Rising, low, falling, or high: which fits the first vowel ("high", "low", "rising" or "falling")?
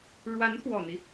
rising